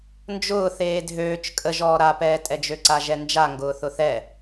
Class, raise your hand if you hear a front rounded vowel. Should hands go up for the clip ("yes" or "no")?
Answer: yes